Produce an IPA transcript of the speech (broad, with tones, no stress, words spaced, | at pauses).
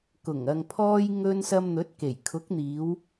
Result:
kʊ˨˩ŋɐ˨ŋpʰɔː˧j ŋɵ˧nsɐ˧mn̪ɵ˨˥t̚ ke˨˩jkʰʊ˨˥k̚n̪iː˨˧w